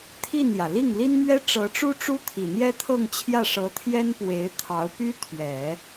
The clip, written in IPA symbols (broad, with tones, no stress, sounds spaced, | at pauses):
t̪ʰ i˥˩ n j ä˩ l i˥˩ ŋ l i˥ n m ɥ ɛ˥ ʈ͡ʂ ɤ˧˥ ʈ͡ʂ u˥ ʈ͡ʂ u˥ t̪ʰ i˨˩ n̪ j ɛ˥ t̪ʰ ɤ˥˧ ŋ t͡ɕʰ j ä˥˩ ʂ ɤ˧˥ t̪ʰ j ɛ˥ n p w e˧˥ ɪ̯ t̪ʰ ɑ˧˥ ʊ̯ p y˥ t̪ʰ ɥ ɛ˨˩˦